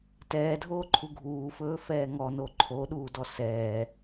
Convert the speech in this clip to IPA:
tɛːdʱoːǃʰu ɡʱuːfɵːfɛː ŋɔno ǃʰoɗuːdɔ sɛː

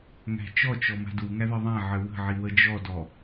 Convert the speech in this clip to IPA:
ŋæ̤t͡ʃɔt͡ʃɔ ma̤duŋæ ðɘðˤãʕɘ wə̤ʕi wəd͡ʒɔdɔ

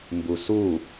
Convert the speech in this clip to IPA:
mbusu

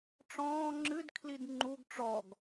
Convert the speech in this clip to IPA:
ʈ͡ʂɔ̃ː ŋ͡ǁɨd kʰlidŋ͡ǃuɡ ʈ͡ʂɔɡ

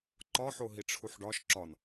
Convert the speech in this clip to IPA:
ǃɒħo ɦiʈ͡ʂʰuħɖɒʃ ǁɒn

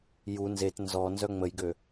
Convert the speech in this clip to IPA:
ju nzet nzɔ nzœŋ͡məjɡø

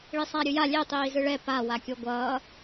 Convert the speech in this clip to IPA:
ɭisˤaɾʲɯja lʲe tˤiːzɯɭɛ pa wakʲoɡʷʌː

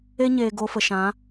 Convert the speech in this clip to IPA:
e˦ɲeː˨ ɡo˧fə˨ʃã˨˦

